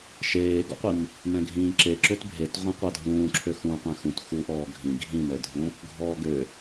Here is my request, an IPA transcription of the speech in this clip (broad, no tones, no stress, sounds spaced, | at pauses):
ʃ eː ɡ ɔ̰ qʷ i m | m ɛ̃ ɡʱ ĩː ǁ e ǁ ø t bʱ e t ʁʷ ɛ̃ qʷ a dʱ ũː ǁʰ ø x ũ qʷ ɛ̃ x ũ t x u ʔ ɔː ɡʱ ĩ ɡʱ ĩ m ɛ dʱ ũ | ɡʱ ɔː ɡ ø